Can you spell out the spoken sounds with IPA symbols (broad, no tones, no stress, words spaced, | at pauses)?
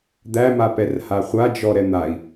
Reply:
d̪æmapɛr haχʷad͡ʒɔ ɾɛn̪ai̯